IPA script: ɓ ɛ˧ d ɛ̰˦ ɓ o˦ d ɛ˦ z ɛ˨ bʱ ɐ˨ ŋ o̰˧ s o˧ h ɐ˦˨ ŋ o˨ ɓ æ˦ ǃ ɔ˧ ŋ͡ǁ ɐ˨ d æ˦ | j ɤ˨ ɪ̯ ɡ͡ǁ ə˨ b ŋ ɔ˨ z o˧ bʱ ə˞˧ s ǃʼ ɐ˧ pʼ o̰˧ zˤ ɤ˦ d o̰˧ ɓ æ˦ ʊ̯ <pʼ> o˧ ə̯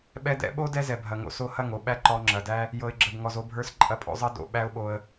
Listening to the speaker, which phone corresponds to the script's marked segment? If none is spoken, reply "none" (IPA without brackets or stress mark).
ɓ